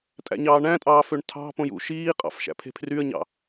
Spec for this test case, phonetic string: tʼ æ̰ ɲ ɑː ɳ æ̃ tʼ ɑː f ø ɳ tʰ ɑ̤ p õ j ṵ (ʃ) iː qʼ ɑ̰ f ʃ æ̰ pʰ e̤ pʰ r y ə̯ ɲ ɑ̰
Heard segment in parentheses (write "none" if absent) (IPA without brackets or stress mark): ʃ